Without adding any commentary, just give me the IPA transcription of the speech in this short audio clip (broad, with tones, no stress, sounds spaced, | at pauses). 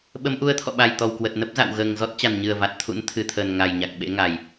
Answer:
ɓ ə˨˦ m ʔ u˨˦ ə̯ t̪ʰ ɔ̰˧˨ ɓ a˨˩ j t̪ ɔ˨˩ w k w ə˨˩ t̚ n ə˦˥ p̚ z a̰˧˨ w ɣ əː˨˩ ŋ z ɔ˦˥ t̚ t͡ɕ a˨˩ n ɲ ɨ˨˩ ə̯ v a˨˩ t̚ t̪ʰ ṵ˧˥ n t̪ʰ ɨ˨˩ t̪ʰ əː˨˩ n ŋ a˨˩ j ɲ a˨˩ k̚ ɓ ḛ˧˥ ŋ a˨˩ j